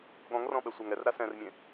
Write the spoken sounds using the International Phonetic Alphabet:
ɠ ɔ̃ ŋ r ɔ̃ ɓ ɛ sʷ a ŋ ɛ r ɾ a s ɛ̃ r mʲ ẽ

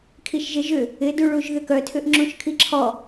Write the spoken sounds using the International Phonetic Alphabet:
kʰ i ʃ ʒ ɪ ʒ ʏ | ɪ d u ɭ u ʒ ð ʏ k œ tʰ ʏ ʔ ŋ͡ǁ ũ ʃ kʰ i ǁʰ ɔ

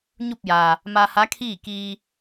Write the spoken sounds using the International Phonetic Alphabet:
ɲ u˥˨ p̚ j aː˩ | m a˧ h a˧˥ kʰ iː˥˨ k iː˧

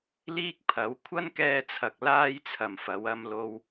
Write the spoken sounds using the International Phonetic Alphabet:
l iː˥ k̚ pʰ ɐ˨˥ w kʷʰ ɐ˥ n k ɛː˧ t͡sʰ ɐ˨ k̚ l aː˥ j t͡sʰ ɐ˨ m f ɐ˨˧ w ɐ˧ m l o˧ w

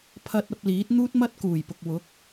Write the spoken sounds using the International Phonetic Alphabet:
pʰ ɐ˧ t̚ ɐ˧ p̚ l iː˨˥ t̚ n̪ uː˥ t̚ m ɐ˥ t̚ k uː˨˩ j p ʊ˨ k̚ w ʊ˨˥ k̚

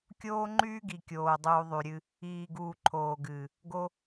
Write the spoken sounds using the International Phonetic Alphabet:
kʲ oː˦ ŋ͡ǃ yː˦ ɡ i˨ kʲ oː˨ dˤ uː˨ ðˤ y˨ ɾʲ ɨ˧ | iː˨ ɡ uː˨ ǃʰ oː˨ ɡ ɨː˨ | ɡ o˧

